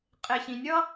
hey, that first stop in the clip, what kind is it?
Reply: ejective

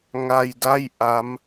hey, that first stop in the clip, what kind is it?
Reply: plain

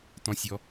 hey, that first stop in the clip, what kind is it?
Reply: plain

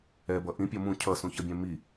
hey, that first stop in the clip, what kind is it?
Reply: plain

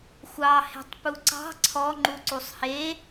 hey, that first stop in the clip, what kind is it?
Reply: plain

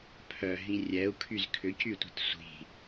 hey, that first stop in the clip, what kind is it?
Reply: aspirated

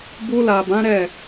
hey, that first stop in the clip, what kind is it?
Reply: plain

